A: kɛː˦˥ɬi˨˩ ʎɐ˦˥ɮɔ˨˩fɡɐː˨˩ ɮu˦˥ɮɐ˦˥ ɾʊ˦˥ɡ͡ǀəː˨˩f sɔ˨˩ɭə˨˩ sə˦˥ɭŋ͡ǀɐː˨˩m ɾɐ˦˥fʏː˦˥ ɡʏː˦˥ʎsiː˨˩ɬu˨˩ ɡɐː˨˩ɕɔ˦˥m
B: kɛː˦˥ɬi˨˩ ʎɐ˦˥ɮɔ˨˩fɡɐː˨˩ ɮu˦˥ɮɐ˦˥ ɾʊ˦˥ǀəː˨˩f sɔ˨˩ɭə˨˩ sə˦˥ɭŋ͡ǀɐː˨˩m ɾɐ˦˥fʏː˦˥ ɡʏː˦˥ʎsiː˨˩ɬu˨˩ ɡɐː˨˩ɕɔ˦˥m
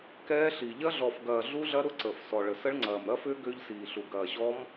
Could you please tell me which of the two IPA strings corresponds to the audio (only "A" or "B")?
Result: B